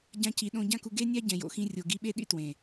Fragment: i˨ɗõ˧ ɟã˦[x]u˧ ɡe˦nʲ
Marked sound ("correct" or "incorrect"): incorrect